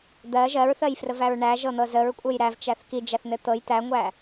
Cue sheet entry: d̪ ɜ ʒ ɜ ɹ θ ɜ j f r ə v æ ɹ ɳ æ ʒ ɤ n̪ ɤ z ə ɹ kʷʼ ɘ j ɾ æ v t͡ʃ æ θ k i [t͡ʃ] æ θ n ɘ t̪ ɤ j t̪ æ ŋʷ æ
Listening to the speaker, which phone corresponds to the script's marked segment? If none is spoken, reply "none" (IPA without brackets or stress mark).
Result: d͡ʒ